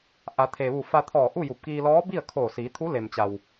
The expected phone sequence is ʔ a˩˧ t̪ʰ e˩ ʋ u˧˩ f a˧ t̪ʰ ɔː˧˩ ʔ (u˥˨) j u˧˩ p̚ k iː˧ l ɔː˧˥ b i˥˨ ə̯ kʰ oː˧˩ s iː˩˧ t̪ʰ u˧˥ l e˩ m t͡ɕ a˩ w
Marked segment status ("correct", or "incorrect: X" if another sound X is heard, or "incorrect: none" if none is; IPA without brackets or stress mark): correct